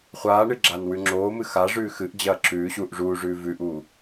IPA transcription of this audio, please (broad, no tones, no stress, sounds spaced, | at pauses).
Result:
χʷ aː ɳ ɨ ɡ͡ǁ aː n w ʉ ŋ͡ǁ oː m ɨ x a ʐ ʉː x ɨ ʔ d͡ʑ ɐː ǁ ʉː ɕ uː ʔ ʐ uː ʐ ʉː v ʉ ʔ uː